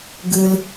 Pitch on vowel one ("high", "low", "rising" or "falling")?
low